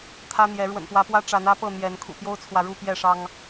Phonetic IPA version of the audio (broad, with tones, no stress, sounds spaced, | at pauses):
t̪ʰ ä˦ n̪ j ɛ˨˦ ɻ w ə̰˨˩ n p w ä˨˦ p w ä˦ ʈ͡ʂ a˨˦ n ä˦ p ɤ˥˨ n̪ j ɛ˨˦ n kʰ ṵ˨˩ p j o˦ ʊ̯ t͡sʰ w ä˨ ɻ u˥˨ p j ɛ˥˨ ʂ ɑ˦ ŋ